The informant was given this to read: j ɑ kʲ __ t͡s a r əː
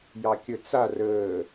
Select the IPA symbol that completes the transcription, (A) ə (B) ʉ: A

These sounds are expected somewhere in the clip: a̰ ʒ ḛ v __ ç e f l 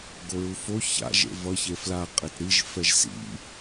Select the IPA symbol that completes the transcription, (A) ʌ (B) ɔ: A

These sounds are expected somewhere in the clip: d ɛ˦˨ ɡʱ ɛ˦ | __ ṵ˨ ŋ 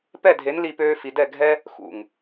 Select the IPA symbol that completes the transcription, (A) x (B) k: A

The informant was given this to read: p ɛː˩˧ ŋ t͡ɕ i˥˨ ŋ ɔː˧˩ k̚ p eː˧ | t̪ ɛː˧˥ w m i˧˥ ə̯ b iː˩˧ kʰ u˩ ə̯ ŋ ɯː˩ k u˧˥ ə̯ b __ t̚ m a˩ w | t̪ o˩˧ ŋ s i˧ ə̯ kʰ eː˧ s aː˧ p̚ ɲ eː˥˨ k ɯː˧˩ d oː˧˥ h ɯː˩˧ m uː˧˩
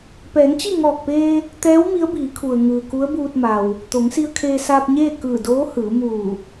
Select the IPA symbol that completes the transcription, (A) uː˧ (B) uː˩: A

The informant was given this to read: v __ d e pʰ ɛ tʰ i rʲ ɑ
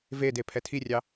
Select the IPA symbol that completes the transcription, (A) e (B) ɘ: A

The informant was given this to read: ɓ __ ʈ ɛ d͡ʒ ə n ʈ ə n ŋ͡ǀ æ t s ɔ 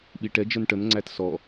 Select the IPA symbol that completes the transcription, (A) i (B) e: A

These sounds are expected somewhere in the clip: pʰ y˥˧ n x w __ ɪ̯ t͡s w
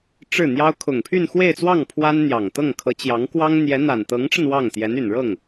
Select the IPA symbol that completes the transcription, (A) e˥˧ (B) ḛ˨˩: A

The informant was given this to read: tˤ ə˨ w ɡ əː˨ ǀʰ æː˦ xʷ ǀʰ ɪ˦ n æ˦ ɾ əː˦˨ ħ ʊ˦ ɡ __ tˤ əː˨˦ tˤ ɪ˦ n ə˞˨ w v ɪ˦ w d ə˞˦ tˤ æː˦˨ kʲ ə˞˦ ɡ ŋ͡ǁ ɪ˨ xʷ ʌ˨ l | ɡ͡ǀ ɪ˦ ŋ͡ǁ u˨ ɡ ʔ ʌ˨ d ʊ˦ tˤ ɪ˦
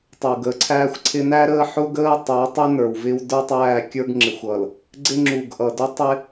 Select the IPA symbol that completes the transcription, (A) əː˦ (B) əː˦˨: A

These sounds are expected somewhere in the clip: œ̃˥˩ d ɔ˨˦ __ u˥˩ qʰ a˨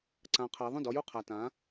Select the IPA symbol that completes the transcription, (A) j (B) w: A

